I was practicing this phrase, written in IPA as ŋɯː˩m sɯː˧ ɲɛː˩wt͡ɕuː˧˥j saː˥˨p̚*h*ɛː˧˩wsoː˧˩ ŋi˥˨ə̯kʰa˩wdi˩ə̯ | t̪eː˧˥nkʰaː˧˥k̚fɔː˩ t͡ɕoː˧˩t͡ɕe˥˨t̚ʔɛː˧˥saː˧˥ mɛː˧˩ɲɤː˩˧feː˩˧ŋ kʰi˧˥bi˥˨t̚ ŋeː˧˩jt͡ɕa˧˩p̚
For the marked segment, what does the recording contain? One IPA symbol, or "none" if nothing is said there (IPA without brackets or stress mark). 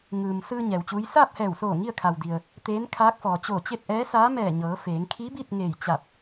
h